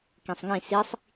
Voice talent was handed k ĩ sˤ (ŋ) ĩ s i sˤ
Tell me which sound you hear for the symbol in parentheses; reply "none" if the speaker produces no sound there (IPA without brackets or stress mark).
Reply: ŋ